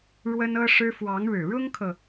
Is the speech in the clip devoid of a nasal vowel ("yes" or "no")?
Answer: yes